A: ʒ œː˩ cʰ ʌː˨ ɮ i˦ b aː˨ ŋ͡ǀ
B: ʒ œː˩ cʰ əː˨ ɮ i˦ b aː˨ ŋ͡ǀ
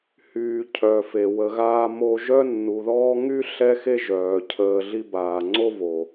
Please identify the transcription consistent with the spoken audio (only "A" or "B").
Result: B